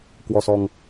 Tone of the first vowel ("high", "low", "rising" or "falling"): low